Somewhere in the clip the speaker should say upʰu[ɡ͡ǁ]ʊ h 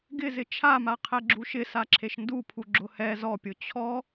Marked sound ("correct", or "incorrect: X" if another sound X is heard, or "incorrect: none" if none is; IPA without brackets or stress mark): correct